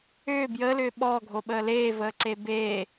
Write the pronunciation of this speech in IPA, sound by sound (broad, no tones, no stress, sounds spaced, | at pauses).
ʏː b j əː l ʏː ɓ ɔː ɡʱ o ɓ əː l eː v əː ǀ e b eː